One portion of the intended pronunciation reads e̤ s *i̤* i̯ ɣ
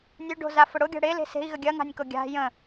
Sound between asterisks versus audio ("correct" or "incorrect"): incorrect